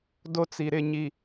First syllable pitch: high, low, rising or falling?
high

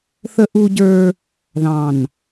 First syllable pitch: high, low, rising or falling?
high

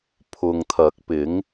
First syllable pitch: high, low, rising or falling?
low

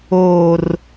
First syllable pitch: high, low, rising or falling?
low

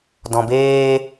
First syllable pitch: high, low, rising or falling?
low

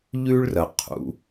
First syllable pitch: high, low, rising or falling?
high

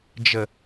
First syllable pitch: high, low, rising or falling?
low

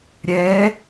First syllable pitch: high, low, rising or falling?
rising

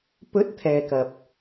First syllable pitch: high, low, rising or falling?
rising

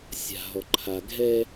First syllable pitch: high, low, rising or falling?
low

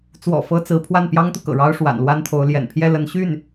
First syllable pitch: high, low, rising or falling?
low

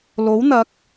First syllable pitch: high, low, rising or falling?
rising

